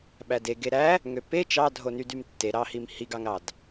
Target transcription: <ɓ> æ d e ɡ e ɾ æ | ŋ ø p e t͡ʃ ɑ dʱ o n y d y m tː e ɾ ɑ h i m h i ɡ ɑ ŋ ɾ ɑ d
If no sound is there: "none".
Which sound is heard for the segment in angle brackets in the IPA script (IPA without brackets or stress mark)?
ɓ